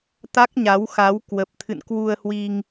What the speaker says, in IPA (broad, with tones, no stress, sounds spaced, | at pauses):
t̪ a˦˥ k̚ ɲ a˨˦ w x a˨˦ w k w ə˨˩ p̚ t̪ʰ ɨ̰˧˨ n k w u˧ ə̯ h w i˧ ŋ